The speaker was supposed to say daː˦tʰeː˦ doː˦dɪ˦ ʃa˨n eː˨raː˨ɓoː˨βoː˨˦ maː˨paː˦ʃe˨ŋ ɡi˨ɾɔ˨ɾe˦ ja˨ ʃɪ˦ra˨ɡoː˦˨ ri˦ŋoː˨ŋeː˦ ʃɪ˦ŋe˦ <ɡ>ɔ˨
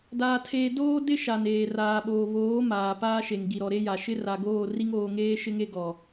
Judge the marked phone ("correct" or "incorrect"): correct